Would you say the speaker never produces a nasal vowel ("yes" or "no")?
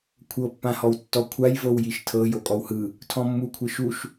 no